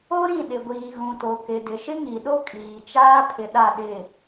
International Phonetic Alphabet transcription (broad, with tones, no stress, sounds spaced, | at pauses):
o˦ ɾ ĩ˦˨ ɗ ɪ˨ ɡʷ iː˨ ɣ ũ˨ t o˨ k ɪ˨ d ɪ˨ ʃ ɪ˦ ŋ i˨ ɗ o˦ kʼ iː˨ t͡ʃ aː˦ pʰ ɪ˨ ɗ a˦˨ ɗ ɪ˦˨